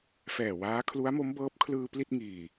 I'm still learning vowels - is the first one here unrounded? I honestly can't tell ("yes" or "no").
yes